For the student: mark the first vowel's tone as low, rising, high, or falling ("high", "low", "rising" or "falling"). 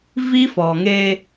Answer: high